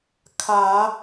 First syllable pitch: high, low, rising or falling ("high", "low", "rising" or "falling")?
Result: rising